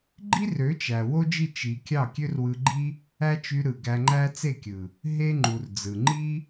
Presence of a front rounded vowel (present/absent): present